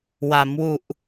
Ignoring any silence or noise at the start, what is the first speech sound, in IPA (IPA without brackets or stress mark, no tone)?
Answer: w